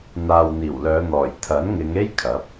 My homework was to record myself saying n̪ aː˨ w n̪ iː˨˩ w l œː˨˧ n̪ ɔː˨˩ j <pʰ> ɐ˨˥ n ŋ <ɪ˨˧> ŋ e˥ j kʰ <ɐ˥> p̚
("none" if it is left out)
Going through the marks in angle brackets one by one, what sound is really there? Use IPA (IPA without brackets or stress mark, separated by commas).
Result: t̪ʰ, ɪ˨˧, ɐ˨˥